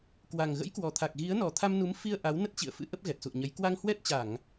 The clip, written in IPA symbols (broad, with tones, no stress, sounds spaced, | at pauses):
k w a˨˩ ŋ ɣ ə̰˧˥ j k w ɔ˨˩ t̪ʰ a˨˩ k̚ ɣ i˨˦ ə̯ n ɔ˨˩ t̪ʰ a˧ m n u˨˦ m f i˧ ə̯ ʔ a˨˦ w n ə˦˥ t̚ t͡ɕ ḭ˧˨ ə̯ f ɨ̰˧˥ ʔ ə˦˥ p̚ ɣ ɛ˨˩ t̚ s ṵ˧˨ ə̯ ɲ ə˨˦ j k w a˧ ŋ h w ɛ˦˥ t̚ t͡ɕ a˧˩˨ ŋ